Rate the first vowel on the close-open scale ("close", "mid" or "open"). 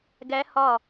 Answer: open